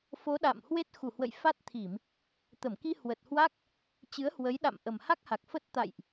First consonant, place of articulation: labial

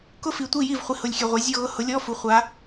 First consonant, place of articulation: velar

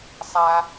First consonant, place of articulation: alveolar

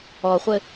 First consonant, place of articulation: uvular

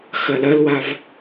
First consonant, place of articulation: velar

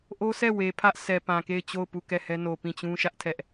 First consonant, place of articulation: glottal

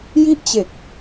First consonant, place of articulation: palatal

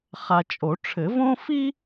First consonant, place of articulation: uvular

